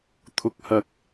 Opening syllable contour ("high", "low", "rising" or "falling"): rising